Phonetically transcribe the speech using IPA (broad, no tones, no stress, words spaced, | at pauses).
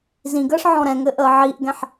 zĩɡəːʂ ʕɔ̃ɾɛ̃ŋɘ ʔəːʕiʔɡɛ̃ħ